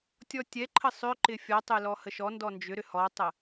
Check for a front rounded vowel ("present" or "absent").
present